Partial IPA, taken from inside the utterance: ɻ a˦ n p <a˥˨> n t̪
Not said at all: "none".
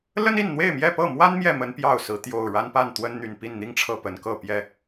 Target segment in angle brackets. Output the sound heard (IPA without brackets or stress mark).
a˥˨